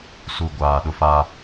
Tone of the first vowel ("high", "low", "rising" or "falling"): low